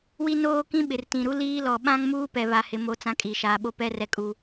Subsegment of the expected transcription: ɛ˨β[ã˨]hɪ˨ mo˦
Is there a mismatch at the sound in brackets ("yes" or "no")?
yes